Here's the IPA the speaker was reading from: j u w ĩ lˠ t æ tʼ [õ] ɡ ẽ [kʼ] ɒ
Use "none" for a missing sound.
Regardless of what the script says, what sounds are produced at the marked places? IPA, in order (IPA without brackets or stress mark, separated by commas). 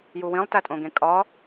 õ, kʼ